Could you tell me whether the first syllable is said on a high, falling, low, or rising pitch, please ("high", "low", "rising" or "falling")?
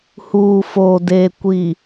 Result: low